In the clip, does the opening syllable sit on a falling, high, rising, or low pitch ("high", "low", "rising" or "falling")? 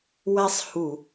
high